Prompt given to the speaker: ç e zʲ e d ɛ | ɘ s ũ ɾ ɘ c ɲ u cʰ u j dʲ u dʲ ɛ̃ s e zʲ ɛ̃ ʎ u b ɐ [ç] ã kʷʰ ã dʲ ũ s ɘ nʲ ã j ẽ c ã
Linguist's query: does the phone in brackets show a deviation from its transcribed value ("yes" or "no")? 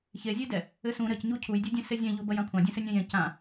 yes